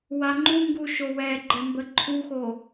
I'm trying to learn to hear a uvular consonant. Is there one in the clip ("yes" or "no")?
no